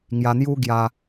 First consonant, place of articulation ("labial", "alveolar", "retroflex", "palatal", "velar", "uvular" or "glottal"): velar